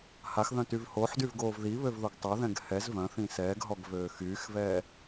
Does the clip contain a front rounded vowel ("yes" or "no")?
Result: yes